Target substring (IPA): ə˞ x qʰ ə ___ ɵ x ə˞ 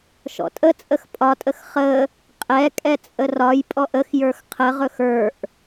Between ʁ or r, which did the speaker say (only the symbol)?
ʁ